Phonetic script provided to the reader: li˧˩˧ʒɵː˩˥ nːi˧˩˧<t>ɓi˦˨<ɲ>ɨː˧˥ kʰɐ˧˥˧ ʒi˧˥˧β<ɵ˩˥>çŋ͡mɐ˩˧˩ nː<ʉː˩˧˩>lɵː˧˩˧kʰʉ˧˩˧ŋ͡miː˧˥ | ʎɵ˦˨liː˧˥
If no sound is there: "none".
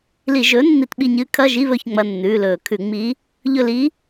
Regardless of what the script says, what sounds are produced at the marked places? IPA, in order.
t, ɲ, ɵ˦˨, ʉː˩˧˩

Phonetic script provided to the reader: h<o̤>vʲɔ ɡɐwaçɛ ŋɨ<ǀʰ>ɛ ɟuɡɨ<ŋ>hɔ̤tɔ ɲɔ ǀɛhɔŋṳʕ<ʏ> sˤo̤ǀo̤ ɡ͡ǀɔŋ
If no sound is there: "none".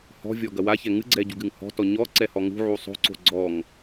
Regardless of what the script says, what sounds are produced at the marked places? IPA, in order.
ɔ̤, ɡ͡ǀ, ŋ, u

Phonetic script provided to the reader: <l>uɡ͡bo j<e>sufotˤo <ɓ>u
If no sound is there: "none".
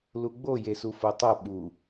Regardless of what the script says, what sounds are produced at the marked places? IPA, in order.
l, e, ɓ

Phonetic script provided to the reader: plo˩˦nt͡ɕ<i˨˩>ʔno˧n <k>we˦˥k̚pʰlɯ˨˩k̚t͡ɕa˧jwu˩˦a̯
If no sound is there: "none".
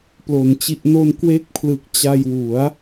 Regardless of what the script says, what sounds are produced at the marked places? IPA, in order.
i˨˩, k

